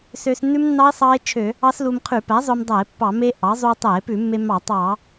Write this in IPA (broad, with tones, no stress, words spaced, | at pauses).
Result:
sø˧snːʉ˦˥mnːɑ˦˥e̯ sˤɑ˦˥e̯t͡ʃʰø˧˩˧ | ɑ˦˥slu˧m qʰʉ˧˩˧pæ˩˥zˤø˧mdˤæ˧˩˧e̯ pːɑ˧˩˧me˦˥ʔɑ˩˥ zˤu˧e̯tˤæ˧˩˧e̯ pʉ˧˩˧mːe˧mɑ˧˩˧ tˤɑ˧˩˧